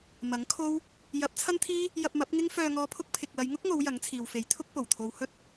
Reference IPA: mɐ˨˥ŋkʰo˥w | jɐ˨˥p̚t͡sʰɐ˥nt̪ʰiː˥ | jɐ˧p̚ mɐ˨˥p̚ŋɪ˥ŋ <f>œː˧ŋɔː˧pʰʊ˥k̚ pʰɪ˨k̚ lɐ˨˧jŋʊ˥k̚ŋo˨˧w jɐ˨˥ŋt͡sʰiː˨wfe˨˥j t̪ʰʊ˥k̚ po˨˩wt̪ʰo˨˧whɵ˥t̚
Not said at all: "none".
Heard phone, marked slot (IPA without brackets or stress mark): f